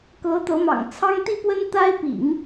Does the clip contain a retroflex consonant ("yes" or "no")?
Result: no